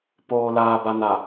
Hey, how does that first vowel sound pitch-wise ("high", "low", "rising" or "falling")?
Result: low